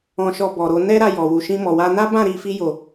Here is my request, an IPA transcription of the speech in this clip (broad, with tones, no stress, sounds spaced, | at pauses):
ɔ̃˧ ʃ ɔ˧ b ɔ˨ ɾ o˧ n ɛ˦ ɾ a˧ j ɔ˨ w u˨ ʃ ĩ˧ m ɔ˨ w a˧ n a˦ b ã˦˨ ɾ i˧ f i˧ j o˨